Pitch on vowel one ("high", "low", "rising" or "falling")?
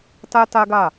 high